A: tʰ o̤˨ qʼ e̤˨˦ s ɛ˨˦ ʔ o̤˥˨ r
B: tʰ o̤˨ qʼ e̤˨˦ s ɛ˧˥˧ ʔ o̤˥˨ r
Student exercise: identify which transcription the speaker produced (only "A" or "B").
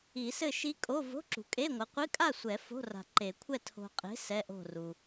B